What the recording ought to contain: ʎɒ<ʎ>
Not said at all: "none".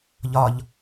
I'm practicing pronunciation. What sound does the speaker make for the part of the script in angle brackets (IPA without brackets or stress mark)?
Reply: ʎ